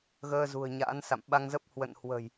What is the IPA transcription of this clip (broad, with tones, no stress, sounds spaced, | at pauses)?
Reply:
ɣ əː˧ z ṳ˨˩ ə̯ ɲ a̰ː˧˥ n s a̰˧˨ m ɓ a˧ ŋ z ə˦˥ p̚ h w ə̰˧˨ n h w ə̤˨˩ j